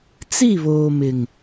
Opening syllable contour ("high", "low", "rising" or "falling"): falling